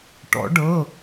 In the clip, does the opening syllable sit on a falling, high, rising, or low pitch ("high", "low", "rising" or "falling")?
rising